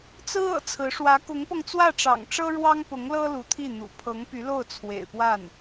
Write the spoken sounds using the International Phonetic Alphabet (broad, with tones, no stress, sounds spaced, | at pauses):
t͡s ɹ̩˥ ɤ̰˨˩ t͡sʰ ɹ̩˧˥ ʂ w ä˧˥ k ʊ˧˥ ŋ p ɤ˧ ŋ t͡s w ä˥˩ ʈ͡ʂ ɑ̰˨˩ ŋ ʈ͡ʂ ɤ˥ ɻ w ɑ˥ ŋ p ʊ˧˥ ŋ l ɤ˥ l u˧˥ t̪ʰ i˥˩ n̪ ṵ˨˩ pʰ ɤ˧˥ ŋ p y˧˥ l o˥˩ ʊ̯ t͡sʰ w ḛ˨˩ ɪ̯ p w a˥˩ n